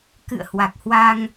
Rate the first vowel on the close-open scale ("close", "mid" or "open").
close